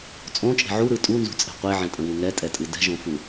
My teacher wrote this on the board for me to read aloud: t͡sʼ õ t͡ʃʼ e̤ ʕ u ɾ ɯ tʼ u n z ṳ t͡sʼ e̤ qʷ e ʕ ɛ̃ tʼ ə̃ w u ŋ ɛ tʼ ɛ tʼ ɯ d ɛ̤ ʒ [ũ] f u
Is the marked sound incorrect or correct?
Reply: incorrect